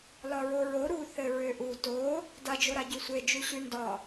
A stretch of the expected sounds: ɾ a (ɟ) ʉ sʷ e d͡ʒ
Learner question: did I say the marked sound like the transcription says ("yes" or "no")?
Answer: yes